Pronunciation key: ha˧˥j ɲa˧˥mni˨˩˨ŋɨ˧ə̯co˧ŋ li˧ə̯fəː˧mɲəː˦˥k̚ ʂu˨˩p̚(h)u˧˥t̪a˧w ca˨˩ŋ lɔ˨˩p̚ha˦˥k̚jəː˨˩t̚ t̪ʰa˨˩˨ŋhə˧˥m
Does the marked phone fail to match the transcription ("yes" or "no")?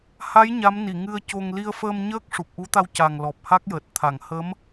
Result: yes